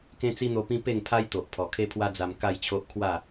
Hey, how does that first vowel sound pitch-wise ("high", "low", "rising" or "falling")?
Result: high